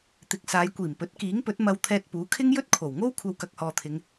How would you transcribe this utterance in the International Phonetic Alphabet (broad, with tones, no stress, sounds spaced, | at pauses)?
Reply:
t̪ ɪ˨˥ k̚ s aː˨˧ j kʷ iː˨˩ m p ɵ˨˥ t̚ k iː˨˥ ŋ p ɵ˨˥ t̚ m ɐ˧ w t̪ʰ ɛː˧ t̚ p uː˨˥ kʰ ɪ˥ ŋ j ɵ˥ t̚ kʰ o˨˩ w ŋ o˥ w kʷʰ ɐ˧ w k ɐ˨ k̚ h ɔː˨ t̪ʰ ɪ˨˧ ŋ